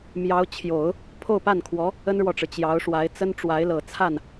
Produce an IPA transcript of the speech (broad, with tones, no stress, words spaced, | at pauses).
mjɑ˧˥ʊ̯t͡ɕʰjo˨˩˦ʊ̯ | pʰo˥˧ʊ̯pa˥˩nkʰwɔ˧˥ | ə˥nɻwɔ˨ʈ͡ʂɻ̩˩ t͡ɕjɑ˧˥ʊ̯ʂwa˧˥ɪ̯ t͡sə˥n ʈ͡ʂwa˧˥ɪ̯lɤ˨˩ t͡sʰa˥˩n